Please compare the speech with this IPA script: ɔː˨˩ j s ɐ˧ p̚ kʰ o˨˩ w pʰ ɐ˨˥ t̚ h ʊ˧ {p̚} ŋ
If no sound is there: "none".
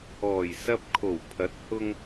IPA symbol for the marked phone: none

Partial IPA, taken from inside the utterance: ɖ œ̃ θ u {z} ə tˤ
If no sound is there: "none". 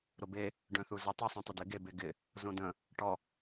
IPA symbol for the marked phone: z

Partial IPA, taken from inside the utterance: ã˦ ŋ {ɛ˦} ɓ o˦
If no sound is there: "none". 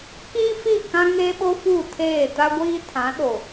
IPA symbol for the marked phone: e˦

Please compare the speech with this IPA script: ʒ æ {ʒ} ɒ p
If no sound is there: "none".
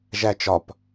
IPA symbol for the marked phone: t͡ʃ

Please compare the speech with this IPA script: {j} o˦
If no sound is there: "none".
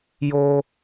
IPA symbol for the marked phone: j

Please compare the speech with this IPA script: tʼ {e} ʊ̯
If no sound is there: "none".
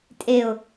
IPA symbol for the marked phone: e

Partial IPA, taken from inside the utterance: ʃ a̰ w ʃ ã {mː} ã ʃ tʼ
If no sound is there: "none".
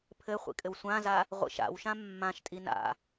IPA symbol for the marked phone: mː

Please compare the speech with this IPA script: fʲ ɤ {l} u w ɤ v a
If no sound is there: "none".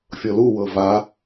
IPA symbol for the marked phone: l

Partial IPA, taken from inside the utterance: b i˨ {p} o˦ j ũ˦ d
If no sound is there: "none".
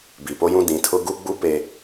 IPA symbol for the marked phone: p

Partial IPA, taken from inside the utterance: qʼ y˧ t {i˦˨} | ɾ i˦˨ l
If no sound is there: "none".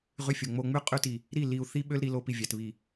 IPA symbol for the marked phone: i˨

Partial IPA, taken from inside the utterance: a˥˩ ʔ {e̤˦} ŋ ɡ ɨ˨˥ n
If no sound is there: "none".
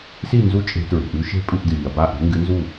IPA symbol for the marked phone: e̤˨˥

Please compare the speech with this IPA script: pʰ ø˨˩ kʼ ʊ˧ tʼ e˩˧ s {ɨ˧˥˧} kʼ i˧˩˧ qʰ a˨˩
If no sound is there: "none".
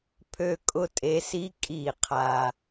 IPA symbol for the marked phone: i˧˥˧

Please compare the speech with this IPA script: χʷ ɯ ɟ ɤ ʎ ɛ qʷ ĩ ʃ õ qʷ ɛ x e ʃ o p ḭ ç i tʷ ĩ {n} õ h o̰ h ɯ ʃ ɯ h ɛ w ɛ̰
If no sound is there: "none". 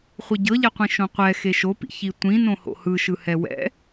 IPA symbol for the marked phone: n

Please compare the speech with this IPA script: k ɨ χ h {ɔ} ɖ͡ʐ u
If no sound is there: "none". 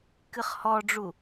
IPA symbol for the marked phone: ɔ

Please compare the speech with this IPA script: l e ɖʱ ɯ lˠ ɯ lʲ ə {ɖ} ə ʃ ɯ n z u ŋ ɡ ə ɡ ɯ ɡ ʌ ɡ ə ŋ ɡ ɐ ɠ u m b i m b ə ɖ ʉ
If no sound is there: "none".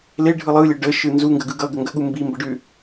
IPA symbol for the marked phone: ɖ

